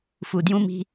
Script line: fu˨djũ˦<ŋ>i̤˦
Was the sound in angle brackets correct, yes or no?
no